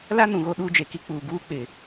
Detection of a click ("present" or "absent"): absent